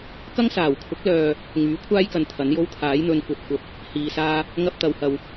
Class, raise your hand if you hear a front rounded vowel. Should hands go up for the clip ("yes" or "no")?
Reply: yes